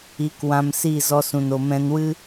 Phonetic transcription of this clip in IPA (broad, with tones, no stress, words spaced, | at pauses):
i˨˦k wã˧msi˦˨ zɔ˧sũ˨n o˨mɛ̃˧nwɨ˦